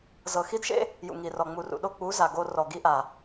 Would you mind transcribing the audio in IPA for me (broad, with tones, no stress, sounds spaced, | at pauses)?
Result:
z ɤ˨ x i˦ d ʃ ḛ˦ | j ṵ˨ ŋ i˨ r ɔ˨ ŋ͡m u˨ r ṵ˨ ɗ o˧ k͡p u˨˦ z a˨ ɡ o˧ r ɔ˨ ɡ i˧ ʔ a˨